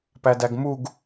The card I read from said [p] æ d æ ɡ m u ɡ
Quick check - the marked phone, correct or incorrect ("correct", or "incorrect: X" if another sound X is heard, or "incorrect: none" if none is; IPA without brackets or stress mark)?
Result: correct